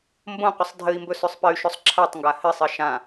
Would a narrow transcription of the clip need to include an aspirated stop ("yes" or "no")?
yes